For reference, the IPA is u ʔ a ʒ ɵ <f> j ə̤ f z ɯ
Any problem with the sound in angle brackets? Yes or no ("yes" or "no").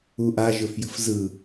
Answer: no